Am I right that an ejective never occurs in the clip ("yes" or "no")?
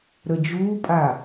no